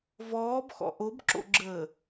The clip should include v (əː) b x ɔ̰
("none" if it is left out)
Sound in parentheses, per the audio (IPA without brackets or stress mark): ɔː